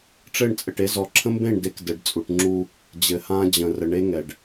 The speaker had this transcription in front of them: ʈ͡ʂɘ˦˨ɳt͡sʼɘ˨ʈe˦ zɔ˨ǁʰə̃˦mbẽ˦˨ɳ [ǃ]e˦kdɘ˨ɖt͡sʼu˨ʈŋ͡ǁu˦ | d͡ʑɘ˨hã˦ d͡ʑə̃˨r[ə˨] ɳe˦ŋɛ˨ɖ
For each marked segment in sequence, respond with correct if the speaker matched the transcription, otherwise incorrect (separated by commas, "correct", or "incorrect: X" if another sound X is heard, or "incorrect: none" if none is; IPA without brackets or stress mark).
incorrect: d, correct